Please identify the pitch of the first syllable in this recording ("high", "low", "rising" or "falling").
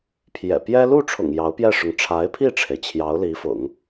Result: low